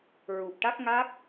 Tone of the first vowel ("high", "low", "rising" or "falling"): low